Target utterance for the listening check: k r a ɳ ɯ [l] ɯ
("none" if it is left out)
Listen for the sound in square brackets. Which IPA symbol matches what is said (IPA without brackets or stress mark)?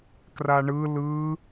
l